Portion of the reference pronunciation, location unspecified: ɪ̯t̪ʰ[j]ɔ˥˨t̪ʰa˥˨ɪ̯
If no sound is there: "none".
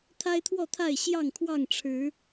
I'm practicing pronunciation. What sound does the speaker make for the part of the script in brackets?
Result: w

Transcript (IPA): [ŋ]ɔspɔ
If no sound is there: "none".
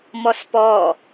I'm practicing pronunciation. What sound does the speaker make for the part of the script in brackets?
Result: m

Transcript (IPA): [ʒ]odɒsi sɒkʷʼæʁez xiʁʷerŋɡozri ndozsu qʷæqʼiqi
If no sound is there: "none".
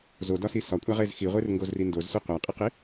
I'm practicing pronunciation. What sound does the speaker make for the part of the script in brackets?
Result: z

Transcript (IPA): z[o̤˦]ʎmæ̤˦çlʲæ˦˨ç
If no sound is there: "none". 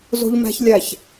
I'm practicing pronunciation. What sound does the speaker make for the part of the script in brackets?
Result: o̤˦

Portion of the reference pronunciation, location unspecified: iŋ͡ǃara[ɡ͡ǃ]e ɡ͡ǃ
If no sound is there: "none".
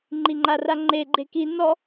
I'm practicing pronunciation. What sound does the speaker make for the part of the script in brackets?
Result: ŋ͡ǃ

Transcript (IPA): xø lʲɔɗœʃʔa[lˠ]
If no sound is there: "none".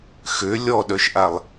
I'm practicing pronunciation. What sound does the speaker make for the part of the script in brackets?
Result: lˠ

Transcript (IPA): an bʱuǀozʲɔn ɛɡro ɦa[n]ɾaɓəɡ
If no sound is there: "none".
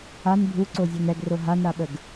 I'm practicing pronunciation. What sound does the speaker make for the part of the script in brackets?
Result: n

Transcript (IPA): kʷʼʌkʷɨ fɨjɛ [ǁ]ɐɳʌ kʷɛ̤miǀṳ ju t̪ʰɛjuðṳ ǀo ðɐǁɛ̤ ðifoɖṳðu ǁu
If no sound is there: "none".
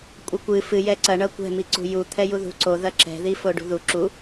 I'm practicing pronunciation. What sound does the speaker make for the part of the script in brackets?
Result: ǀ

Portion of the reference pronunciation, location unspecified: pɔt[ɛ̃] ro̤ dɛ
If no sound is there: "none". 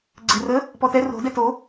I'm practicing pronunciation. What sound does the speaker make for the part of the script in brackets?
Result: ɛ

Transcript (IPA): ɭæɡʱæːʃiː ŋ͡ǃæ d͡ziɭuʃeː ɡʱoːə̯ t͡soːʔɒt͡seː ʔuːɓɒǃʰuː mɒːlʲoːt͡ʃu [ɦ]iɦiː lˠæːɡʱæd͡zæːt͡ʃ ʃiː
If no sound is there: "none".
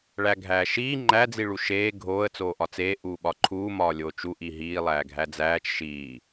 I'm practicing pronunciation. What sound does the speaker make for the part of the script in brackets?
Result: ʔ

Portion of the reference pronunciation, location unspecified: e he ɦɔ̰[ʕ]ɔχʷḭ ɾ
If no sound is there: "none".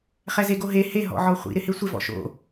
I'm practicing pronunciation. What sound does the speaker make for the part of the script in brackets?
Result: ʕ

